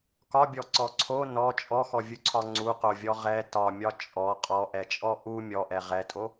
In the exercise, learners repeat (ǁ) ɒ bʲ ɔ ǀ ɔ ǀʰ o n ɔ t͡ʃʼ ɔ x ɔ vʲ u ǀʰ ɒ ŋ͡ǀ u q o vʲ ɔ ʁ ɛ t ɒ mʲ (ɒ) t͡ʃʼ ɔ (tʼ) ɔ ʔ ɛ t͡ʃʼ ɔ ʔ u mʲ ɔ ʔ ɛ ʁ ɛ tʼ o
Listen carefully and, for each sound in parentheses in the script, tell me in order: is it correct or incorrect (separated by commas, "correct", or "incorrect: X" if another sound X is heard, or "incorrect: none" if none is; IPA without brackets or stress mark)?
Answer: incorrect: k, correct, incorrect: qʼ